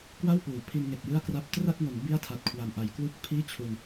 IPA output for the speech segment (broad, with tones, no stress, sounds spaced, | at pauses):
k w a˥˩ w p uː˩˦ pʰ i˧ n ŋ e˨˩ k̚ j ɯ˥˩ a̯ k r a˥˩ p̚ t r a˥˩ t̚ ŋ o˩˦ n b i˥˩ a̯ tʰ a˨˩ t̚ kʰ w a˨˩ m ʔ a˨˩ j k w u˥˩ k̚ pʰ iː˥˩ t͡ɕʰ u˧ n